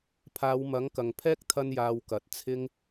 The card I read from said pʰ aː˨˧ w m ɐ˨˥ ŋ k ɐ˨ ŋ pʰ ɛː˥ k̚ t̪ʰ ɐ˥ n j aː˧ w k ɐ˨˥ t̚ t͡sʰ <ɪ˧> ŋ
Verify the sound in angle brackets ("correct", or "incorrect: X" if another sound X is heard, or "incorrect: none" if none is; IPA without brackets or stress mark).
incorrect: ɪ˥